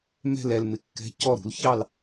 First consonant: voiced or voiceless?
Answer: voiced